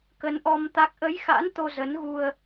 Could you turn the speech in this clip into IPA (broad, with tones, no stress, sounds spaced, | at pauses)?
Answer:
k ə˨˦ n ʔ ɔ˧ m t̪ a˦˥ k̚ ʔ ə˨˦ j x a̰˧˥ n t̪ o˧ z ə˨˦ n ɣ u˧ ə̯